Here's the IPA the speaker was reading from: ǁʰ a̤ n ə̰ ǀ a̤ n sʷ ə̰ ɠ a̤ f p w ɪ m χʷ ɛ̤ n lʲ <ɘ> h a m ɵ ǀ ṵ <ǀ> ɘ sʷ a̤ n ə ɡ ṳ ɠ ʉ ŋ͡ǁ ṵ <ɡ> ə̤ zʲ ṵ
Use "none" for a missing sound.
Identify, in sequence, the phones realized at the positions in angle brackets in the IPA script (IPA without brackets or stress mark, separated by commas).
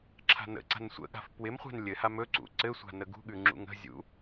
ɘ, ǀ, ŋ